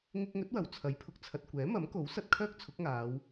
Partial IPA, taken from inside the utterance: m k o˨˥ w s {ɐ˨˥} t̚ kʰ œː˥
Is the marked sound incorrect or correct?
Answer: incorrect